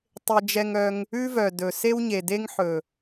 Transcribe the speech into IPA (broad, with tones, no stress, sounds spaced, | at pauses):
tˤ e˧ d͡ʒ ɛ˧ ŋ œ˧ ŋ | ʉ˦ v œ˨ d ɵ˨ s e˦ w ɲ e˨ d e˦ ŋ ħ ɵ˨